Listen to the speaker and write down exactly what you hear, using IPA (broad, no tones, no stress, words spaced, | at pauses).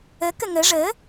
əkə ŋə ʐə